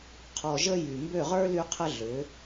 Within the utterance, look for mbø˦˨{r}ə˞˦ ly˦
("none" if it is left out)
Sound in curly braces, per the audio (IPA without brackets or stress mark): ʁ